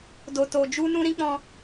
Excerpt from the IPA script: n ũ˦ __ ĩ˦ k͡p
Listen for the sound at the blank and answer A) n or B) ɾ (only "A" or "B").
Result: B